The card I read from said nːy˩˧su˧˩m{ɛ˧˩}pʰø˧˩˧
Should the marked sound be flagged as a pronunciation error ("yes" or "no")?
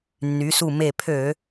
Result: yes